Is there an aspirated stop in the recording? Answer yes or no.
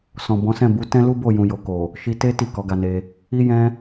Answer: no